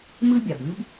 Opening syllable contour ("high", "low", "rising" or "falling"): high